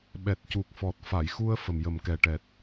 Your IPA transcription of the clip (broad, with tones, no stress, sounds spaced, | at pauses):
ɓ ɛ˨˩ t̚ c u˨˩ k̚ f ɔ˨˩ t̚ f a˨˩˨ j x u˧ ə̯ f ə˨˩ m j ə˨˩ m k ɛ˨˩ ʈ ɛ˨˩ t̚